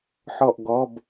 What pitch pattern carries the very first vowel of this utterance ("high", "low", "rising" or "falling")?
falling